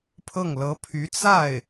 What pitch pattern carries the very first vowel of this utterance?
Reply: falling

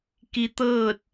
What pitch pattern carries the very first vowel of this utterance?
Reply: rising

